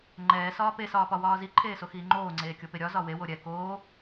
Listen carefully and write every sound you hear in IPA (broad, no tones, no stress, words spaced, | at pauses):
ŋ͡ǃɛːsɒː pesɒːpɒwɒː ziǃʰeːsoxiː ŋ͡ǃoːŋ͡ǀeːkʲope ɾʲɒzɒ wewo ɾʲɛ koː